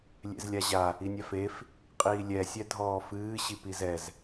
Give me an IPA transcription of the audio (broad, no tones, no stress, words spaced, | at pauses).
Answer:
lʲḛzlʲaʑa | inʲafef | qʼiːlʲɛ sʲɛdʱɔːfɨː ɕipizɛz